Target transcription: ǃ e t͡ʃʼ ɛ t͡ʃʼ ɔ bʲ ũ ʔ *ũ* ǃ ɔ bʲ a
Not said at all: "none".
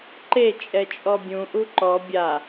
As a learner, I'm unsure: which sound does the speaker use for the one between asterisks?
u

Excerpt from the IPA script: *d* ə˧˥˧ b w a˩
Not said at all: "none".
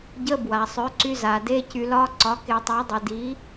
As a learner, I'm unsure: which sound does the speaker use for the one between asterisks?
ɟ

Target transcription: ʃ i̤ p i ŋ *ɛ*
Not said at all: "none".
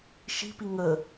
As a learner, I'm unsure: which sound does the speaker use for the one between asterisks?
ə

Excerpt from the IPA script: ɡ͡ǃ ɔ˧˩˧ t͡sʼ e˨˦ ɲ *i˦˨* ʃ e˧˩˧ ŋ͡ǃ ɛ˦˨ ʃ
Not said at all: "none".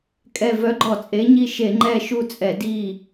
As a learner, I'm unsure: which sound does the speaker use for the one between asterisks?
i˦˨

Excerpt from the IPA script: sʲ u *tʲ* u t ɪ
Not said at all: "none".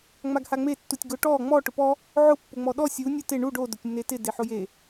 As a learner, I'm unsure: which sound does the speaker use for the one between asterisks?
nʲ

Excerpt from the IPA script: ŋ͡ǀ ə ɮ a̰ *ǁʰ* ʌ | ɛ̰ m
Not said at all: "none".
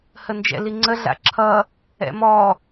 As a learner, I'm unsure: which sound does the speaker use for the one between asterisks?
ǁʰ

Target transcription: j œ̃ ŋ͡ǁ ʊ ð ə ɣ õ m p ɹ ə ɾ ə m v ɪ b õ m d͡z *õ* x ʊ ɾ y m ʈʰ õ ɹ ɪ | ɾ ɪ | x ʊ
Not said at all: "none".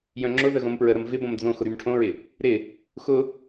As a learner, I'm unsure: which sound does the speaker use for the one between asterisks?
õ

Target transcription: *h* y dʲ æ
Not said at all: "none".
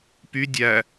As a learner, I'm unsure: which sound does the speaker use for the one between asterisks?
p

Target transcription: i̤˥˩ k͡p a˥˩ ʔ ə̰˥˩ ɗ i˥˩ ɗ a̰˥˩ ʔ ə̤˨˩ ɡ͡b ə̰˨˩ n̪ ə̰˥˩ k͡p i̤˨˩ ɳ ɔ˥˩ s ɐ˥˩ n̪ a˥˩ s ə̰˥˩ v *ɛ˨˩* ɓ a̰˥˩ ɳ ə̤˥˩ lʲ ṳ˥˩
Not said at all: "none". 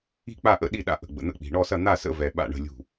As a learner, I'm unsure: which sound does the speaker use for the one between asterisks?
ɛ˨˩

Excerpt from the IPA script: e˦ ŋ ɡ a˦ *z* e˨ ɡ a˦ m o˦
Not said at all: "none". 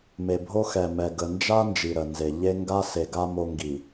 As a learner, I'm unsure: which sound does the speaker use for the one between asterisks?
s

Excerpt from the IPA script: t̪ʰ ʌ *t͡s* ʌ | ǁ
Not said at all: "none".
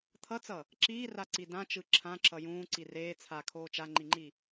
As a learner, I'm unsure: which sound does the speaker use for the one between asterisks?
t͡s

